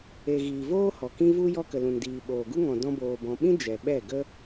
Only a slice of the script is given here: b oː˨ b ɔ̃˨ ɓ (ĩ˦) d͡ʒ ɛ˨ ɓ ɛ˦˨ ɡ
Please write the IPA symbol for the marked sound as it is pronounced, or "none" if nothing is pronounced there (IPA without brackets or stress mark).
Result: ĩ˦